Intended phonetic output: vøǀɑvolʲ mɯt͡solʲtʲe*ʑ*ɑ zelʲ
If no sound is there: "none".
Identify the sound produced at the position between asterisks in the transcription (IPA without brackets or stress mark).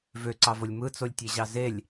ʑ